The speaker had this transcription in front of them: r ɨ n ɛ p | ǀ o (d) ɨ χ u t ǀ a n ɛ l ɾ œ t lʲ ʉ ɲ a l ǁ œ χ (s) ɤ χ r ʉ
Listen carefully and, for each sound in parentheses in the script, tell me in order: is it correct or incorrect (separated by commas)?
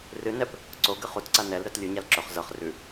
incorrect, incorrect